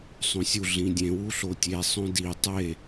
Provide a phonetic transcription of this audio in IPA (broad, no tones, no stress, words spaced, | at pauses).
sˤõsʲu ɮĩdʲẽ wuɬotʲe sˤõdi tˤe